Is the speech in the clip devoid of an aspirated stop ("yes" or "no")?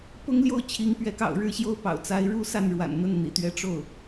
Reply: no